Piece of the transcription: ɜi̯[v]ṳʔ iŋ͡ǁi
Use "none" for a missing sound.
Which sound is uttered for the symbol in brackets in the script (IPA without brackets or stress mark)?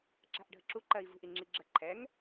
v